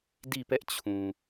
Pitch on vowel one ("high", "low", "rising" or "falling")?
falling